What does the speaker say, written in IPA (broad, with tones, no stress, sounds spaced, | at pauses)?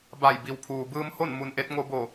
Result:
b a˧˩ j b i˩˧ w pʰ uː˩ b ɯː˧ m h o˥˨ n m u˧ n ʔ e˧˥ t̚ ŋ o˧ b o˧˩